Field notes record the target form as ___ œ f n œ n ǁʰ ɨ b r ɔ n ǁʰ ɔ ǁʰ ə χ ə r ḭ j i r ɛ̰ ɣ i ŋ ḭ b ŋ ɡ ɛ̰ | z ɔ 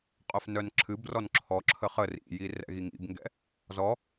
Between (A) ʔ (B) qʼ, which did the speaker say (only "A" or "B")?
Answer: B